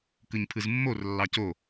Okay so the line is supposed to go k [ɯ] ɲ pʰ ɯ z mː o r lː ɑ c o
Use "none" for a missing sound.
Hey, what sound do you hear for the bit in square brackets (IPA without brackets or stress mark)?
ɯ